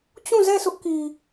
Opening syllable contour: falling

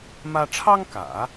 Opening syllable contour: high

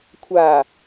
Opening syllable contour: low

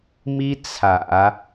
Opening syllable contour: high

